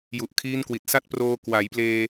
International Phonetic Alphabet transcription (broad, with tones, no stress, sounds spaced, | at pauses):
j u˨˩ ʔ kʰ iː˦˥ n k w i˨˩ t̚ s a˥˩ t̚ p r oː˧ k w a˩˦ j p l eː˧